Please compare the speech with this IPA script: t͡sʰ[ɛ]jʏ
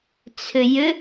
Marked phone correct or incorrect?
incorrect